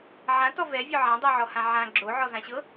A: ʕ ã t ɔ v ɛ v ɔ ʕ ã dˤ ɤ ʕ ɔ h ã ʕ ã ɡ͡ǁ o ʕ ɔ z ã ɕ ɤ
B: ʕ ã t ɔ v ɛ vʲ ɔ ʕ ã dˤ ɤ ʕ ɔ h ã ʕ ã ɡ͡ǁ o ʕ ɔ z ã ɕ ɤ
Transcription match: B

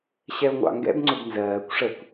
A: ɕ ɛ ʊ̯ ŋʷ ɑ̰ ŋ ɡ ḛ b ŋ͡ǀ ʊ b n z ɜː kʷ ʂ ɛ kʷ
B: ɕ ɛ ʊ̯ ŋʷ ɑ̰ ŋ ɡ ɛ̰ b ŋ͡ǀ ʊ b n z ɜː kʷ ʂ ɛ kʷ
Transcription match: B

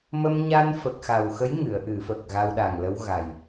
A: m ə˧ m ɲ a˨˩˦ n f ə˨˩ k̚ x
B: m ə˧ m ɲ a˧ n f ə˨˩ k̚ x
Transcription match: B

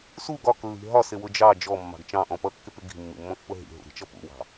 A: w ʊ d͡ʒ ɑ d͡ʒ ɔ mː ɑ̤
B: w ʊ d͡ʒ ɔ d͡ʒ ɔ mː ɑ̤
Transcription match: A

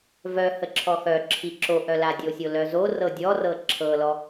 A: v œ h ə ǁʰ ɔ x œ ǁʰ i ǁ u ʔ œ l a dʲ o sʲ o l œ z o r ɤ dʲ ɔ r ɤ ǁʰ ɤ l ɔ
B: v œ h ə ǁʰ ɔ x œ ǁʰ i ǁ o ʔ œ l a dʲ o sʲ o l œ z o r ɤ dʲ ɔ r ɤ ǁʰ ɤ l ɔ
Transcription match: B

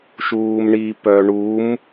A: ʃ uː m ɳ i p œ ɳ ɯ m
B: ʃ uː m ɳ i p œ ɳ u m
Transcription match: B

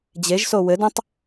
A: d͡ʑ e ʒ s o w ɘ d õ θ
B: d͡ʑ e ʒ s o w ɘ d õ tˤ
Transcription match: B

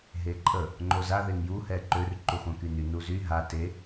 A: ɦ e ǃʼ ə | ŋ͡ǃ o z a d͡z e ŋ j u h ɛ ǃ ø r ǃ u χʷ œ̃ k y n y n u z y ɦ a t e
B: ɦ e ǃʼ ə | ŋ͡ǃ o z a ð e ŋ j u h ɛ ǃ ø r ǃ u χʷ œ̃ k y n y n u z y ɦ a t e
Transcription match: B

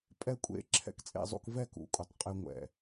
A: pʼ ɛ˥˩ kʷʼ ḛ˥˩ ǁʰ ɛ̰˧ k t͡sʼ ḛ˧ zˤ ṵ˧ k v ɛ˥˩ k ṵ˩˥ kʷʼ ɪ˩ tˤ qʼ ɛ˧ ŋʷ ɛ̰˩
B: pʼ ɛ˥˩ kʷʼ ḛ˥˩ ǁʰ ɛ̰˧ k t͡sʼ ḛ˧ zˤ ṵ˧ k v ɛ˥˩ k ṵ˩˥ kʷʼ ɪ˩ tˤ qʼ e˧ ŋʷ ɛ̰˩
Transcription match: B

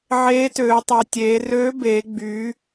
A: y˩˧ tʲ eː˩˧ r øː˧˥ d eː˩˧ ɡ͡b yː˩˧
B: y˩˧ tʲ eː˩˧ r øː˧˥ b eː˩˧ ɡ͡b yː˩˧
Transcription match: B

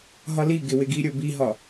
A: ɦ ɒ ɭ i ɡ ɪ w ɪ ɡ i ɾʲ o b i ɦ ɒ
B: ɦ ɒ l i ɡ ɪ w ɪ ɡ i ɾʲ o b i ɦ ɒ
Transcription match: B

